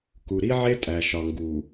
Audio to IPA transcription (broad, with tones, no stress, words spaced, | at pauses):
ku˨ ɾi˦ʕe˦ tʼæ˨ʃɒ˨ ŋɡu˨